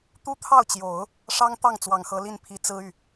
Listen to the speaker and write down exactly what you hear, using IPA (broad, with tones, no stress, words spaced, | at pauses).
t̪u˥t̪ʰɑ˥˩ʊ̯t͡ɕjo˨˩˦ʊ̯ | ʂɑ˥ŋt̪ɑ˥˩ŋ t͡swɑ˨˩ŋxɤ˧˥li˥˩npʰi˧˥ t͡sɹ̩˥y˥˩